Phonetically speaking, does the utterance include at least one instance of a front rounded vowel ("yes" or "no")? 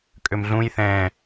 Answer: yes